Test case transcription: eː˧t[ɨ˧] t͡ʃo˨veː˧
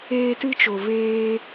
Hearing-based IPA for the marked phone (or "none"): ɨ˧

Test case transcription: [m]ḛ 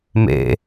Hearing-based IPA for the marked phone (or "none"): m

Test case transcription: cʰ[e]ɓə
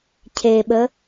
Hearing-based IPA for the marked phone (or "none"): e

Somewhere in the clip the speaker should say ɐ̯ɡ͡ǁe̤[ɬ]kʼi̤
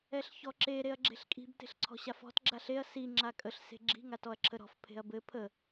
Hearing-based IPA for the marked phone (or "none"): ɬ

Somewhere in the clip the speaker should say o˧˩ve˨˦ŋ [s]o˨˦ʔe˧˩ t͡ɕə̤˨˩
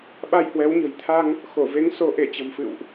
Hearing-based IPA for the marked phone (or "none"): s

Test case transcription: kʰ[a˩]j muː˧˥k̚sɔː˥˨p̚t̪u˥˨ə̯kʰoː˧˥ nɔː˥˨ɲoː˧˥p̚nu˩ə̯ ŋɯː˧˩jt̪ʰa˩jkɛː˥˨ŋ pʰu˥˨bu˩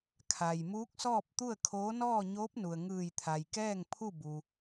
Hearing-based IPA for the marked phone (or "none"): a˩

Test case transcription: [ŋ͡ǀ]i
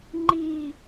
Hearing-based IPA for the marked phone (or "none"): ŋ͡ǃ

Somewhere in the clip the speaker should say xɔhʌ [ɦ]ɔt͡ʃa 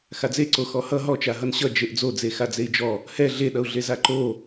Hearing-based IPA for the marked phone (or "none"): ɦ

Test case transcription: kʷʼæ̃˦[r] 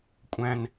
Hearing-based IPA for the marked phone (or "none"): n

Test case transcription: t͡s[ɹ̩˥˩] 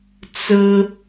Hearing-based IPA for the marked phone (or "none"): ɹ̩˥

